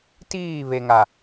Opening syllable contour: falling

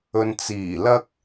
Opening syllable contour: low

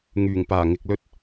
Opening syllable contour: low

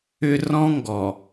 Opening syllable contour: high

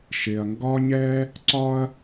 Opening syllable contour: low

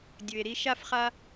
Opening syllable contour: low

